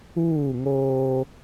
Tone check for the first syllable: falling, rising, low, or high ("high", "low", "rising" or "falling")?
falling